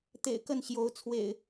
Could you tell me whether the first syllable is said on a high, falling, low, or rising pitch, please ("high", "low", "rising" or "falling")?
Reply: low